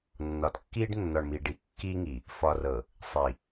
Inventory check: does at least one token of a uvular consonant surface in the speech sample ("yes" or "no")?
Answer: no